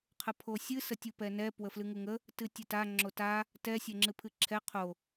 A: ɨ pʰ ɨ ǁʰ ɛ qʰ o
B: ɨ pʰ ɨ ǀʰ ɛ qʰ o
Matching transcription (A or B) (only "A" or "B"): A